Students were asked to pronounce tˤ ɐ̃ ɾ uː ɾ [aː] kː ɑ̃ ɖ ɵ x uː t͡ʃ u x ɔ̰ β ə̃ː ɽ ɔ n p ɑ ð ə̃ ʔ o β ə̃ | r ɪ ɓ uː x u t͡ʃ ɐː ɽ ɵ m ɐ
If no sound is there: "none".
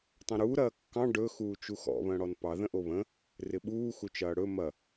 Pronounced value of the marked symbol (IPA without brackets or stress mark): ɐː